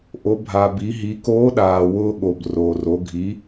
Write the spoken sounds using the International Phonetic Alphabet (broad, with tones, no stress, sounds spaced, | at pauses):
ʔ o˩˧ bʱ a˩ b i˩˧ ɦ i˩˧ k oː˧˥ ɗ aː˩ w ʊː˧ ɠ o˩ b r oː˩ r o˩˧ ɡʱ i˩˧